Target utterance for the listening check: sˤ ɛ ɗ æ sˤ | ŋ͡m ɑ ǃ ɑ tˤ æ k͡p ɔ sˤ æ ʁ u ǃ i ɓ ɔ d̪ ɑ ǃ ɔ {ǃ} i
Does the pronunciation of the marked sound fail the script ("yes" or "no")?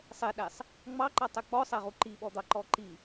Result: no